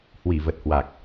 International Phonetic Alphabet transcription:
hwi˧˩və˨˩t̚hwa˨˩k̚

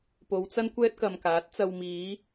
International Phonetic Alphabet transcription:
po˨˧wt͡sɐ˥nkʷɛː˥t̚ kɐ˨mkaː˨˥t̚t͡sɐ˧w miː˨˧

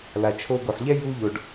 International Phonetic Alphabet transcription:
la˨t͡ʃʰo˧ɡo˨ħʎɛ˦ ju˦ʎo˧ɖ

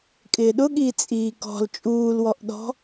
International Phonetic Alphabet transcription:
kʼɪːɗʊɠiː t͡sʼiːkɔ̤l t͡ʃʼuːlwɔʔɗɔ̤

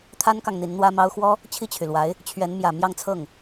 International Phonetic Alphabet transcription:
t̪ʰa˥nkɑ˨ŋ n̪i˧˥nn̪wä˥mɑ˥ʊ̯ xwɔ˥ | t͡ɕʰi˥˩t͡ɕʰy˩lwa˧˥ɪ̯ | t͡ɕʰɥɛ˧˥nmjä˨˩ mjɑ˥˧ŋt͡sʰɤ˥˩ŋ

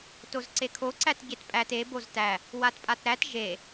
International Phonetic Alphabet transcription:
tozǀekʰo ǀætɟetpʼæt e boztæ | watpʼatɾæt ʒe

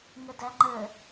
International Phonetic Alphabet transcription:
ŋədæŋ͡ǃə

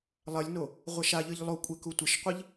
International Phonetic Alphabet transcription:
lˠɐlʲno | ʁʷɐʃaʎɨʎ lˠokʷʼe kutʷɘʃqʷiʎ

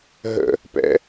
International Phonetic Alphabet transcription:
ɦə̰ | pɛ̰

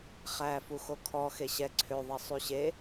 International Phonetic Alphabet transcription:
χæ fuxokʰɔ xeɕɛ ǀʰøðˤɛ sˤyɕe

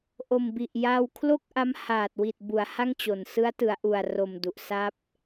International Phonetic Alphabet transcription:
ʔo˨˩mbi˨˩ʔja˧w kʰlo˥˩k̚ʔa˦˥mhaː˨˩t̚wi˨˩t̚ bu˩˦a̯ ha˥˩ŋt͡ɕo˨˩n sɯ˦˥a̯tɯ˩˦a̯ʔu˨˩a̯ro˨˩m du˨˩ʔ sa˦˥p̚

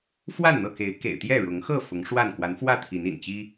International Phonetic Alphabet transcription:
fwa˥˨nn̪ɤ˥˨ke˨˦ɪ̯kḛ˨˩ɪ̯ t̪jɛ˥˨ɻʊ˨˦ŋxɤ˥˨ fʊ˨˦ŋʂwa˥˨n kwa˨˦nfwä˥˨t̪ʰi˨˦nḭ˨˩n t͡ɕi˦

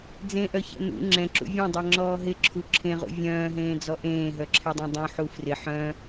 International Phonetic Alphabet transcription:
d͡zẽʔœçɛ̰ nṵ ŋ͡ǁɛ̃ǁṵ vʲœ̃dˤɛŋ͡ǁɔː ɦɪǁʰu ǁʰẽʁṵ vʲœ̃ːɦẽːd͡zɔ ʔẽːɦœǁʰɛdˤɛ̃ dˤũħu frɪ ħœ̃

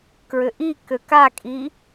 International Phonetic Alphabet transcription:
kɹʏʔikø kakʼi

